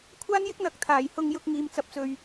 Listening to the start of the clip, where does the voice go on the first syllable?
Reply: high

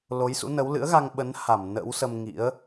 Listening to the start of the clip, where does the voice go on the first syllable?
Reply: rising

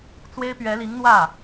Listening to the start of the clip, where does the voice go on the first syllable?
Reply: high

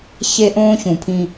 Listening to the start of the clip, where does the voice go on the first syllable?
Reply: high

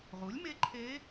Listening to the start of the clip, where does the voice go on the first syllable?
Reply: rising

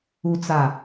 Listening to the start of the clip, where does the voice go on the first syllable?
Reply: low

